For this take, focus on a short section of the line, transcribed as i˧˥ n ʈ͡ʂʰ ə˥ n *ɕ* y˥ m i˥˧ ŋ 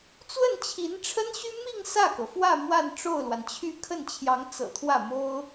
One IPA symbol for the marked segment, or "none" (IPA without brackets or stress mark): ɕ